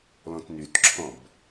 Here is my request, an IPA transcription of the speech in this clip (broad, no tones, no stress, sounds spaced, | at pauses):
l ɔ̃ t n y t ǁʰ ɔ̃ b